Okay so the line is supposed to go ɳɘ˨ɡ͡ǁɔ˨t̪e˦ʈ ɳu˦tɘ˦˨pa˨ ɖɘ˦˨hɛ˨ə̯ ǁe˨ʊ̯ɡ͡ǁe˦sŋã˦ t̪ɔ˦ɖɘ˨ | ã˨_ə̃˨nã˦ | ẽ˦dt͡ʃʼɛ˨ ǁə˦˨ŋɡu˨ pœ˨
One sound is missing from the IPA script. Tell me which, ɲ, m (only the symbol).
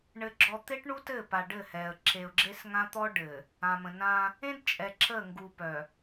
m